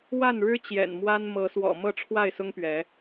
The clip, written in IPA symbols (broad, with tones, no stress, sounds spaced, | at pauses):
w a˥˨ n ɻ ɻ̩˦ t͡ɕ j ɛ̰˨˩ n m w a˦ n m ɤ˨˦ s w ɔ̰˨˩ m ɤ˥˨ ʈ͡ʂʰ w a˥˨ ɪ̯ s ʊ˦ ŋ p ɥ ɛ˨˦